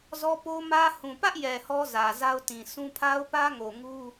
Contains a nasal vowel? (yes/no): yes